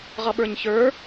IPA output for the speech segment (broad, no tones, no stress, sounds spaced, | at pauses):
ʁ ʌ ɓ ə˞ ɲ ç ə˞